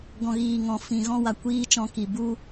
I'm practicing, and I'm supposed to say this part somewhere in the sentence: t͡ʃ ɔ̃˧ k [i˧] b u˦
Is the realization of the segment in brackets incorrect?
yes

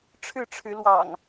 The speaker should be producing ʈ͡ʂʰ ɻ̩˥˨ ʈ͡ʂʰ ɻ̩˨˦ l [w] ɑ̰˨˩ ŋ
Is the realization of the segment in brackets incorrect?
no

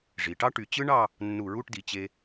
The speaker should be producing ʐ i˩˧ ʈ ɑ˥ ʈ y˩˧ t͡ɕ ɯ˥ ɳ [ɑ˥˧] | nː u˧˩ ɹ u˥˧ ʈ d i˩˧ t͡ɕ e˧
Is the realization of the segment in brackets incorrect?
no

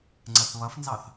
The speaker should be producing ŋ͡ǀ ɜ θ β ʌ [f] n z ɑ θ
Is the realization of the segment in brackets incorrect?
no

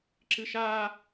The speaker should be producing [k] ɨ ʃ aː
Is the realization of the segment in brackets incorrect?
yes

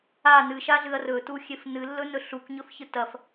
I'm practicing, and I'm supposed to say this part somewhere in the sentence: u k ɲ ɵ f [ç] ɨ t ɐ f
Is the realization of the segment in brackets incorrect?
no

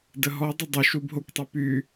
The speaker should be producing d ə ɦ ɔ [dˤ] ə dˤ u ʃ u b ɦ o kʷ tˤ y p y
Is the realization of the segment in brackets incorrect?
no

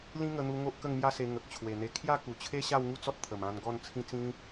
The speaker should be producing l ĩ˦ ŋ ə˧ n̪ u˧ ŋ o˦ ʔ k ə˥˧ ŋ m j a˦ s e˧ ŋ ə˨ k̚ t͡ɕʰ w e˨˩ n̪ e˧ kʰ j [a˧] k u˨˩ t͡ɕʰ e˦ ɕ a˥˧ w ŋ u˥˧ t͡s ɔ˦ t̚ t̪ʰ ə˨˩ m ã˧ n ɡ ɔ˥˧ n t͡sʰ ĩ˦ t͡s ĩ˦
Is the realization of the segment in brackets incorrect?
yes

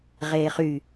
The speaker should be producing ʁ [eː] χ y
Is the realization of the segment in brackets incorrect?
no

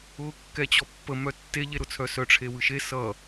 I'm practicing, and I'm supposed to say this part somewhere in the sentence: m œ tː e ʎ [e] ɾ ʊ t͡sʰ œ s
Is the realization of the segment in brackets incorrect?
no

